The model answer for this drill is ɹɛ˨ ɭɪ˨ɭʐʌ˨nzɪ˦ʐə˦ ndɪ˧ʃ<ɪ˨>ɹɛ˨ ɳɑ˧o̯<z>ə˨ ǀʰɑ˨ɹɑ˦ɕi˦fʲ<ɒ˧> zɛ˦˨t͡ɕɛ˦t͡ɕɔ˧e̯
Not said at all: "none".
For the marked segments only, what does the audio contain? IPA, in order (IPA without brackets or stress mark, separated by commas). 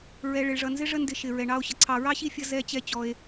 ɪ˨, ɕ, ʌ˧